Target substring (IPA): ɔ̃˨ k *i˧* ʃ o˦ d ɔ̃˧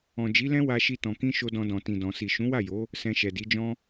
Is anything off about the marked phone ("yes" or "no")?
yes